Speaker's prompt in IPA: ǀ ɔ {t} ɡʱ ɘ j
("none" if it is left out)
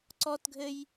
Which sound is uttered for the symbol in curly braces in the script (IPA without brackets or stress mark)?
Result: t